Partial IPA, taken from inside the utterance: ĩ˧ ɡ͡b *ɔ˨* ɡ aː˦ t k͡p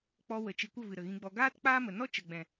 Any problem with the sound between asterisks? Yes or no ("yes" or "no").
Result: yes